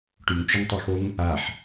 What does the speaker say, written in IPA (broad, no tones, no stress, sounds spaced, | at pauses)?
ʈ y ŋ t͡ʃ ø ŋ tˤ o x o ŋ | a ħ